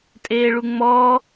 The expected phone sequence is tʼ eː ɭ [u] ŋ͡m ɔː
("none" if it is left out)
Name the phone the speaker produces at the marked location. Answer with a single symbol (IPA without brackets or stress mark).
u